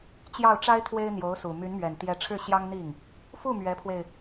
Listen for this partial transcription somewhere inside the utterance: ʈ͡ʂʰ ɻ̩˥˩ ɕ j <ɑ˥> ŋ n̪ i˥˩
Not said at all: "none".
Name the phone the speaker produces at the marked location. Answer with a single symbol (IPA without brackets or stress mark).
ɑ˥